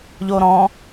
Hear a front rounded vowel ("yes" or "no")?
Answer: no